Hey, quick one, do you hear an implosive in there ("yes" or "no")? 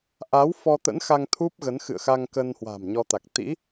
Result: no